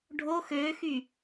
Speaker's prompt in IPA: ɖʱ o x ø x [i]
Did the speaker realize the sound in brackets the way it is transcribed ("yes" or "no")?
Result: no